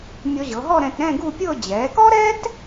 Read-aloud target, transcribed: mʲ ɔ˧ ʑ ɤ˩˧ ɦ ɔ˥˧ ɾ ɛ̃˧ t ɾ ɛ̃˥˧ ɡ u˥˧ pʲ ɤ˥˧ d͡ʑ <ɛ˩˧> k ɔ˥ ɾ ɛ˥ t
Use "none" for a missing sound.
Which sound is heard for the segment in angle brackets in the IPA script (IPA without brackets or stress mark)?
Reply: ɛ˩˧